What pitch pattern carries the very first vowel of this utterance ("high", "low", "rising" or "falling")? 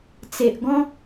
low